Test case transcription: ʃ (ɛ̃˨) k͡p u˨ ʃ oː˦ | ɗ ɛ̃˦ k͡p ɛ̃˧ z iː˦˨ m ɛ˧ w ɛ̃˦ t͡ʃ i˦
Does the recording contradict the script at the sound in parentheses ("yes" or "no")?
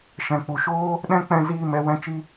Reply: no